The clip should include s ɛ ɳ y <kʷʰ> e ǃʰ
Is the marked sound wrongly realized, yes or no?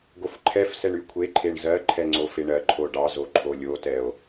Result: no